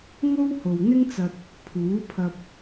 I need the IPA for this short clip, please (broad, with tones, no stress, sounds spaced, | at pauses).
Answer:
ŋ o˥ w h o˨ w n̪ ɪ˥ ŋ t͡s ɐ˧ t̚ | pʰ uː˨˥ pʰ ɐ˧ p̚